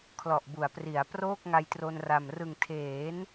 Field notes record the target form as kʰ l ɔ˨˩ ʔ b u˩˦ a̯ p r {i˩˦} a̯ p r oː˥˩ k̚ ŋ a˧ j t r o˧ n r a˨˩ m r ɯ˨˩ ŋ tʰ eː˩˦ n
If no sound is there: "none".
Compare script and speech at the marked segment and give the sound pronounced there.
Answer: i˩˦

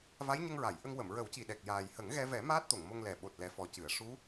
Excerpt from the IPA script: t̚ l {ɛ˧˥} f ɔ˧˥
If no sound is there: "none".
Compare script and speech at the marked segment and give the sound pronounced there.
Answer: ɛ˧˥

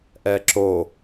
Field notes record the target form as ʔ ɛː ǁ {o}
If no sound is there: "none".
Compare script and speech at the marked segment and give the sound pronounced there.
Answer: o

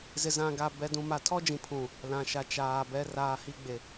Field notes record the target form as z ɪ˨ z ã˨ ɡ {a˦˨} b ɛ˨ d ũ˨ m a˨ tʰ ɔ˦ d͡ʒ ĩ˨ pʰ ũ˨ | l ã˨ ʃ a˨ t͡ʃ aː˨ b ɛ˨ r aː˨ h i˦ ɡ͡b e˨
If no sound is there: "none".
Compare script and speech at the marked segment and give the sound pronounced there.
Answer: a˨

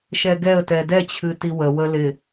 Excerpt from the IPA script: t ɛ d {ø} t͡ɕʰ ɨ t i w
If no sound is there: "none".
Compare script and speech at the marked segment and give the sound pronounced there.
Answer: ɛ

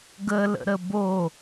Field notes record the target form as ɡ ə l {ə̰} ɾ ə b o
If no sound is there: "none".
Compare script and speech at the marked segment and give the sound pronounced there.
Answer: ə̰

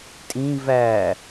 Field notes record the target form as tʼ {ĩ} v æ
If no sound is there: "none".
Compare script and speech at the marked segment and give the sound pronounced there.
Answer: ĩ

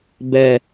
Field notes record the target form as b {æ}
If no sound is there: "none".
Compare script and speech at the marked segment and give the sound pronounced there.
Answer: ɛ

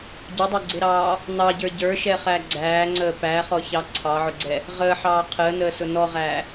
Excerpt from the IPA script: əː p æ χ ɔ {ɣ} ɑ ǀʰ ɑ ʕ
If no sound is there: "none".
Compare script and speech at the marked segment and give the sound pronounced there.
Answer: ç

